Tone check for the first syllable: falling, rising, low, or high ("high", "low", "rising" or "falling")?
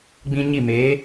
high